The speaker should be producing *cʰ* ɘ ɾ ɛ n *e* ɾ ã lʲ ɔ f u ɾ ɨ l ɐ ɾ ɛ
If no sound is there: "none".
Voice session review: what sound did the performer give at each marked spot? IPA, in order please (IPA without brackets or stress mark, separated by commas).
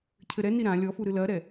cʰ, i